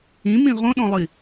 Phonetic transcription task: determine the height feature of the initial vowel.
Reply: high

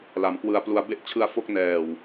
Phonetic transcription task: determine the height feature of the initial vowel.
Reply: low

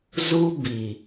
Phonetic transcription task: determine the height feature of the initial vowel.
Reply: high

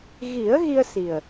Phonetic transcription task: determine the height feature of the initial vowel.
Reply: high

